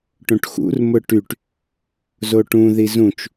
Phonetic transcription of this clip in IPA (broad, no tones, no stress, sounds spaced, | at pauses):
ʈ õ ʈ x ṵ r m ʊ ʈ y ʈ | z o ʈ ũ ð i z ũ t͡ʃ